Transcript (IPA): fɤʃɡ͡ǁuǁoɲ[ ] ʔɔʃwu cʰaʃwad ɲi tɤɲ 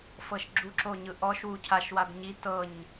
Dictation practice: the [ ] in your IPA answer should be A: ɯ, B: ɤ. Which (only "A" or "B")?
A